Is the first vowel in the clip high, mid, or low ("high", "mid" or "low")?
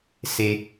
mid